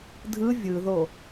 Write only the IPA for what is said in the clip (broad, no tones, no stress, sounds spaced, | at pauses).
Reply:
dʱ ɯ vʲ ɯ ð o